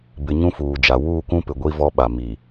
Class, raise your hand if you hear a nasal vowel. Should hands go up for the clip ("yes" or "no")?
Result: yes